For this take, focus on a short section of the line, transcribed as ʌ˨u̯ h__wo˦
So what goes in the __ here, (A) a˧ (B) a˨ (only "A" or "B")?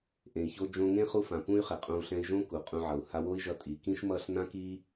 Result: A